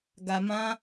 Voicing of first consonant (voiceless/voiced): voiced